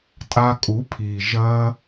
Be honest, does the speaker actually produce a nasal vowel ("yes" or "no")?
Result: no